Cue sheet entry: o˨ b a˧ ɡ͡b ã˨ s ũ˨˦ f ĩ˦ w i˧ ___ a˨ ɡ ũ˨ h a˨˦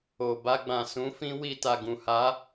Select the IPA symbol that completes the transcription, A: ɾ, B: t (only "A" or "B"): B